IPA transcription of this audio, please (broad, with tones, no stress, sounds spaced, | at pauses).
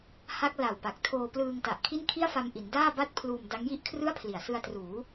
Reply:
h a˦˥ k̚ l a˨˩ w p a˨˩ k̚ tʰ oː˧ p l ɯː˧ ŋ t a˨˩ ʔ kʰ i˥˩ n kʰ i˥˩ a̯ f a˧ m ʔ i˩˦ n d aː˥˩ b a˥˩ t̚ pʰ l uː˧ m d a˦˥ ŋ j i˥˩ ʔ kʰ r ɯ˥˩ a̯ pʰ l i˨˩ a̯ s ɯ˧ a̯ t r uː˩˦